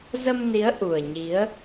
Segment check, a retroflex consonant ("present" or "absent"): absent